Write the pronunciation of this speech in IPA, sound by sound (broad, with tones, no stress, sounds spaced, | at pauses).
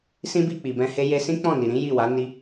s ĩ˦ b i˦˨ k͡p i˨ b ɛ̃˧ h e˦ j e˧ s ĩ˦ k͡p ɔ̃˦˨ n i˨ ɾ ĩ˨˦ j i˦˨ w a˨˦ n i˧